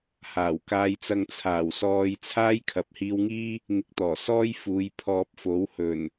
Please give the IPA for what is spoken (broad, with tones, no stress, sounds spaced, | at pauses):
h aː˨˩ w k aː˧ j t͡s ɐ˧ ŋ t͡sʰ aː˨˩ w s ɔː˧ j t͡sʰ aː˥ j kʰ ɐ˨ p̚ h iː˧ w ŋ iː˥ | ŋ ɪ˧ k̚ t̪ ɔː˨˩ s ɔː˥ j f uː˨˧ j pʰ ɔː˧ p̚ f o˨˥ w h ɵ˨˩ n